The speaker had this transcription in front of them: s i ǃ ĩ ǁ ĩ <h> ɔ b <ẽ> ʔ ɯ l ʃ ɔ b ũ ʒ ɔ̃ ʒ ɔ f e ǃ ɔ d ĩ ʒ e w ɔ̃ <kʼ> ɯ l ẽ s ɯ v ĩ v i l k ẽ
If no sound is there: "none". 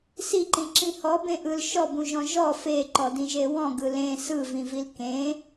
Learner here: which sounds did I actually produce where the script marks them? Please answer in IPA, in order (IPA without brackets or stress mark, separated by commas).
h, ẽ, ɡ